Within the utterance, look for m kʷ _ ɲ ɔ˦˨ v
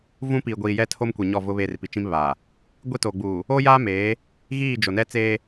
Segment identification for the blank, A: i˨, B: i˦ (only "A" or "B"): A